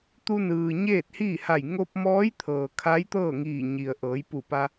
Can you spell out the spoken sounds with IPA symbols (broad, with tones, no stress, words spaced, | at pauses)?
t̪u˧nɯː˩ ɲeː˥˨t̚hiː˥˨ha˧˩j ŋo˧p̚mɔː˧˥jt̪ʰɤː˩ kʰa˧˥jt̪ɤː˥˨ŋiː˧˩ ɲi˩ə̯ ʔɤː˩˧jpu˧˩pa˧